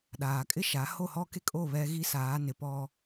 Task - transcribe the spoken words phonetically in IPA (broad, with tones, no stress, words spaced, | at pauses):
ɗaː˨kʼɪ˦ʃa˨˦ ho˦˨ hɔ˦ke˦kʼo˦˨ βɛ˦ ɣi˦saː˨˦nɪ˨ pɔ˦